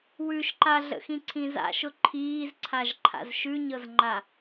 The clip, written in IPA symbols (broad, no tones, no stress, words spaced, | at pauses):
wʉʃǃaɮə̰ xĩǀʰĩza̰ʃʊ ǃʰiːzǀʰaʒ ǃʰa̰zʃʉɲɤzŋ͡ǃa